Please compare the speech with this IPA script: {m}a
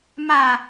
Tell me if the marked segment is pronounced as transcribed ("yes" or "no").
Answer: yes